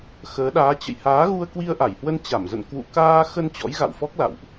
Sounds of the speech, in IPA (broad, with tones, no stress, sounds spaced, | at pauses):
x əː˨˦ ɗ aː˨˦ t͡ɕ ə̰˧˨ j h aː˨˦ ɣ u˧ ə̯ k w i˧ ə̯ ʔ a˧˩ j h w ə˧ n t͡ɕ a˧˩ m z ə̰˧˨ n k w ṵ˧˨ k aː˧ x ə˧ n t͡ɕ ɔ̰˧˥ j ɣ a̰˧˨ w f ɔ˦˥ k̚ l a̰˧˨ w ʔ